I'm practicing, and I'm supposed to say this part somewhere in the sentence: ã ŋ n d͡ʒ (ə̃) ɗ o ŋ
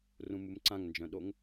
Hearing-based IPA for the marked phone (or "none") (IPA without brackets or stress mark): œ̃